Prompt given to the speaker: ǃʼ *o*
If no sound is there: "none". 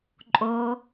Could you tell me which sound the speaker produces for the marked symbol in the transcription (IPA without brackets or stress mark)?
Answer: o